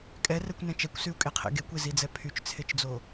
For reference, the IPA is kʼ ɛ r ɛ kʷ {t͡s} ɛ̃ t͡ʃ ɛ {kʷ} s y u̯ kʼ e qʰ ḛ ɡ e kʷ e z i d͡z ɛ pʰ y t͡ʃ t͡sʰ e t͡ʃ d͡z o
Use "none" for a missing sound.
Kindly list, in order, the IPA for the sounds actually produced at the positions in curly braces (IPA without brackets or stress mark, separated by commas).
n, kʷ